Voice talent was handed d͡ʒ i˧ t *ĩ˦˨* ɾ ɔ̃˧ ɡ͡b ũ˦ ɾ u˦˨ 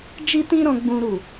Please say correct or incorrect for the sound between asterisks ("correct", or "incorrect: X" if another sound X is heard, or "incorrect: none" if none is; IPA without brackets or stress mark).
incorrect: ĩ˦